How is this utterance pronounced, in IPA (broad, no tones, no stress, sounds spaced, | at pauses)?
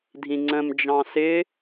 dʱ ĩ ŋ͡ǀ ə̃ m d͡ʒ ɑ̃ s ɪ